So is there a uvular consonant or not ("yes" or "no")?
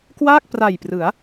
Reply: no